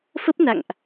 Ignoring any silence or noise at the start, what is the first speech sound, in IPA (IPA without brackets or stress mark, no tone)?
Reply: f